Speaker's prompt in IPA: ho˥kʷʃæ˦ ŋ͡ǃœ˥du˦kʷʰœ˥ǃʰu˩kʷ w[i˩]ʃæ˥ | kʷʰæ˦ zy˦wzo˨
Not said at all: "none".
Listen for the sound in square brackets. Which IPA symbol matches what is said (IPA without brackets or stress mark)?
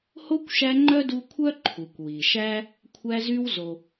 i˩